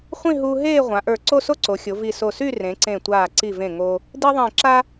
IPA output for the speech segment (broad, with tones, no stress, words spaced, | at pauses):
χʷĩ˥˧ ɦuː˧ ɦeː˥˧ʁʷã˩˧ʔə˞˧˩ ǀo˥˧so˥ǀo˩˧xʲo˩˧ vi˧˩so˧˩ sy˥˧ rẽ˩˧ǀẽ˧˩tʷaː˧˩ ǀi˧˩vẽ˧˩ ŋo˧ | di˥ ðˤĩː˧˩ǁa˥